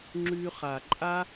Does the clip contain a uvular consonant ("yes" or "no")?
yes